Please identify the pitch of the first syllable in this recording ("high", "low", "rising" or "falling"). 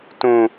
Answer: low